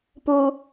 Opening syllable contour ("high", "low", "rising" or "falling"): high